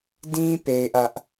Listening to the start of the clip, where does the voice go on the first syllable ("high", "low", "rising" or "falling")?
high